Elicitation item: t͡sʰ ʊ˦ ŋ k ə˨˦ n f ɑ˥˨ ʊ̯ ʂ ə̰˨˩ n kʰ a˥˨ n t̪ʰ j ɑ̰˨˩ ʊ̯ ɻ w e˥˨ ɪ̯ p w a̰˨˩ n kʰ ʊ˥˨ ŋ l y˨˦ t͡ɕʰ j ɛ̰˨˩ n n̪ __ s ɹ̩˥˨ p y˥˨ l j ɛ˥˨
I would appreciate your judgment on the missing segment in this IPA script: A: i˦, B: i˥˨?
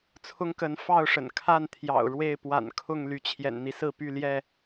A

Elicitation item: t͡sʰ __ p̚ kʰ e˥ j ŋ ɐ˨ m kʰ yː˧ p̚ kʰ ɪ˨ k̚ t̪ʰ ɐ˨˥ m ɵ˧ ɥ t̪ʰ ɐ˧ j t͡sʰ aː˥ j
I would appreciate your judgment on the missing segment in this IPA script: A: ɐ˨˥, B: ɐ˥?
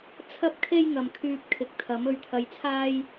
B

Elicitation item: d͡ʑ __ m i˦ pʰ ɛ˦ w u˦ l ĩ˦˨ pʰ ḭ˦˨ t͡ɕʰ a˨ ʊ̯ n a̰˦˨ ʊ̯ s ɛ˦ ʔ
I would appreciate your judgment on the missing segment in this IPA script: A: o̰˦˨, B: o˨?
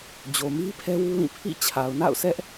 B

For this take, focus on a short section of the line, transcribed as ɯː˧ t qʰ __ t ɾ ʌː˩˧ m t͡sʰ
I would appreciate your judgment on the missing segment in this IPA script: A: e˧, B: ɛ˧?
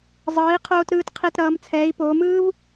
A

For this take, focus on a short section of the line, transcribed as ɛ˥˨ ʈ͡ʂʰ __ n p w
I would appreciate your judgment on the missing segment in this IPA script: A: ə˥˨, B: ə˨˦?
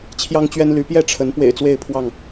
B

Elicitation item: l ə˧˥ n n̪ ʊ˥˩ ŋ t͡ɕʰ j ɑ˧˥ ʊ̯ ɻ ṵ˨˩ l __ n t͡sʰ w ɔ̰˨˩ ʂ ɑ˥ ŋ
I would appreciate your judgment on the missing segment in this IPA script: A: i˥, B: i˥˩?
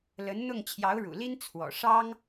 A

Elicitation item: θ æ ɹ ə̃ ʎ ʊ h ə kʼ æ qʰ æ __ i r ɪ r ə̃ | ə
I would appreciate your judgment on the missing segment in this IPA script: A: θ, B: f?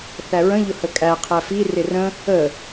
B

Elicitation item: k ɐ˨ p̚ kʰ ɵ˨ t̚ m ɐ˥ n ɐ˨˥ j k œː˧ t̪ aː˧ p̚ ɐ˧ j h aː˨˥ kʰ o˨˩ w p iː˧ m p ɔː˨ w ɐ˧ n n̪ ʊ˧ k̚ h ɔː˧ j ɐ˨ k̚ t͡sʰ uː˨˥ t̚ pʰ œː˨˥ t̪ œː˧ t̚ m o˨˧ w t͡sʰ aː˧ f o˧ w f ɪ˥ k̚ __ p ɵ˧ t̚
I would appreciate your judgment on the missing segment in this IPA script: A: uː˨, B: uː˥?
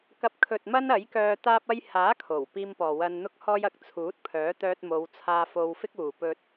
A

